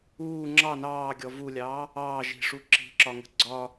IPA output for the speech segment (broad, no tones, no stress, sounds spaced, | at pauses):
uː ŋ͡ǁ ɑ n ɑː ɡʲ ɔ v u lʲ ɑː | ɑː ʒ i̤ ʂ u ǁ i̤ ǁ ɒ ŋ ə̤ ɡ͡ǀ ɒ